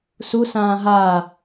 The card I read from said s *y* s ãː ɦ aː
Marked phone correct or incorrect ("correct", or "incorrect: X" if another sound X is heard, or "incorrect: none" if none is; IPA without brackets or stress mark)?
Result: incorrect: u